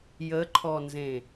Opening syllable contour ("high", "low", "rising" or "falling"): rising